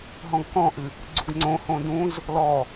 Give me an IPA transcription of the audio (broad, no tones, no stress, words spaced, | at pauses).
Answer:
ɦɔ̃ɡkɔ̃ʔɨ | ɡ͡ǀuɡŋ͡ǀõhõ dũz | lɔ